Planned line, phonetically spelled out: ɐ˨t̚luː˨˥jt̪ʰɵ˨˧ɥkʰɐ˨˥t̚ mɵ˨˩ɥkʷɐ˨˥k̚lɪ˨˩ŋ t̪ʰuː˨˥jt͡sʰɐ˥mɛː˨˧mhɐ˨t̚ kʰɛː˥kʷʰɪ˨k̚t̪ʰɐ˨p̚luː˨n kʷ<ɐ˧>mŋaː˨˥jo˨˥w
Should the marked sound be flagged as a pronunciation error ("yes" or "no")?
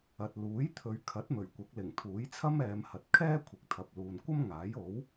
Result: yes